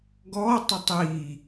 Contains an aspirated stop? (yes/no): no